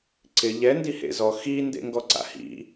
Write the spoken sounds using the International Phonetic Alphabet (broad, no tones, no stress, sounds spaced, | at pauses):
ǀ ɪ ʎ ɛ n d i h ḛ z ɔ x i n d ḛ ŋ ɡ ɔ ǀ a̰ h ḭ